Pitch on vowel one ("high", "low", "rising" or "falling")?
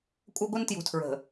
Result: high